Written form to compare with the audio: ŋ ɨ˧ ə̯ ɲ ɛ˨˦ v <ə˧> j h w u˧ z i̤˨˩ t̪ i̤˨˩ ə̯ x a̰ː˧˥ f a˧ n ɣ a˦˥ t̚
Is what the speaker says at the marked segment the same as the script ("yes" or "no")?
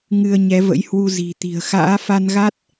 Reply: no